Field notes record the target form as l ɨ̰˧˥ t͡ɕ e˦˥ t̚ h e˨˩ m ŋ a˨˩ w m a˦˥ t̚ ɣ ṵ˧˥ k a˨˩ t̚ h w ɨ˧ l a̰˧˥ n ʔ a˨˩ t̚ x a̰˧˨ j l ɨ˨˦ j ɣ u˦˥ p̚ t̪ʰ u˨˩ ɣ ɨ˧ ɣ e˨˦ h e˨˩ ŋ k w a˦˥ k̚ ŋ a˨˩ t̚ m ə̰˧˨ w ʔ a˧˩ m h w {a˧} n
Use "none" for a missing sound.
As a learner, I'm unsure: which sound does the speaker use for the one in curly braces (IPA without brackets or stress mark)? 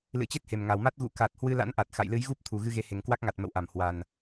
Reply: a˨˩